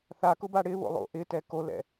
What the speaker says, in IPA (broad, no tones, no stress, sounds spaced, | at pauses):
θ a k ʊ b a ɽ ɪ β o̰ lˠ o̰ ʔ ɪ t ɛ k o l ɛ̰